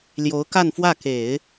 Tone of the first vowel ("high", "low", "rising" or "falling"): rising